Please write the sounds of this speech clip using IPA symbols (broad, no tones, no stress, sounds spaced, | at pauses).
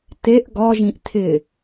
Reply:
t e ʔ ɡ ɒ ʒ ĩ ʔ tʰ ɪ